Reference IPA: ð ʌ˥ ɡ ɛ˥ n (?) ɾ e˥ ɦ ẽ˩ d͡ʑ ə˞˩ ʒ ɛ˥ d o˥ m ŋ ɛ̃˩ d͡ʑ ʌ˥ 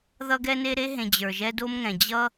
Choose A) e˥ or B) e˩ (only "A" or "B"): A